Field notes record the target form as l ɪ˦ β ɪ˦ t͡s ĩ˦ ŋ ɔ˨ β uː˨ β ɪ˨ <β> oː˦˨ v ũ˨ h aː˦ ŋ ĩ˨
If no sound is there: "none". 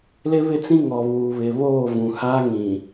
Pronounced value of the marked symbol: β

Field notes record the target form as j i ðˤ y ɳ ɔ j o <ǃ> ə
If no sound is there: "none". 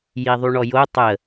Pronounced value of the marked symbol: tˤ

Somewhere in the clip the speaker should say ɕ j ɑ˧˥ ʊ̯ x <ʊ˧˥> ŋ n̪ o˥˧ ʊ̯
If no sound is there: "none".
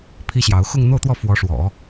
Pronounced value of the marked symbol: ʊ˥˧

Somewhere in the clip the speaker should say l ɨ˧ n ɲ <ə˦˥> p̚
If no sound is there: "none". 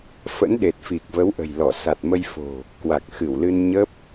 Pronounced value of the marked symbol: ə˦˥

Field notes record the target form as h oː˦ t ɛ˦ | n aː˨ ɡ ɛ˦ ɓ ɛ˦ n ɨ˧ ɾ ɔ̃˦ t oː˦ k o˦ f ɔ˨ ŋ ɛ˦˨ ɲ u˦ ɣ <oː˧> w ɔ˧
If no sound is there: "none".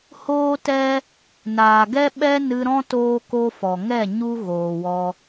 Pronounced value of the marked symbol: oː˨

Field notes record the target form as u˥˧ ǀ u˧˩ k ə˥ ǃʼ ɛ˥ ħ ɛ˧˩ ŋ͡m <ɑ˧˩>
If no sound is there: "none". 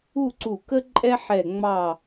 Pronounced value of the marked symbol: ɑ˧˩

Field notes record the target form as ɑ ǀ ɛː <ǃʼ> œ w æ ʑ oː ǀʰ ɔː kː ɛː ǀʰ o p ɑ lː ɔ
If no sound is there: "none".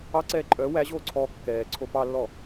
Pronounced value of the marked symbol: ǃʼ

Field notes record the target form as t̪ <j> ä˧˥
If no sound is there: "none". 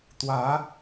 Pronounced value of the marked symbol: w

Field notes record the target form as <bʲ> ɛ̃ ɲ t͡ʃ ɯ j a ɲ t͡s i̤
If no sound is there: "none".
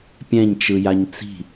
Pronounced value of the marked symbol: pʲ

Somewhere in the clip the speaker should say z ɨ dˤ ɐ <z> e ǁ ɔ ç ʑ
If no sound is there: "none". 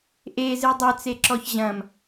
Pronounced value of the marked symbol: t͡s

